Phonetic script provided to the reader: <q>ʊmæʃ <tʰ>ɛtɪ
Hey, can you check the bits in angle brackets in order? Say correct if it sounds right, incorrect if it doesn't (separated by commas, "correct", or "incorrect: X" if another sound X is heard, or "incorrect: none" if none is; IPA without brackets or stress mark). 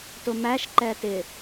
incorrect: t, incorrect: ǃ